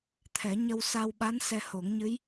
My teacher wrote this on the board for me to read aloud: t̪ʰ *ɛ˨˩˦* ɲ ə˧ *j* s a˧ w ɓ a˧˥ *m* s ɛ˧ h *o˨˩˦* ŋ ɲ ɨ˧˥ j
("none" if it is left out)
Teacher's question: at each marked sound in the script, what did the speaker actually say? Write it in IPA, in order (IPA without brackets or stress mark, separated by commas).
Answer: ɛ˨˩˦, w, n, o˨˩˦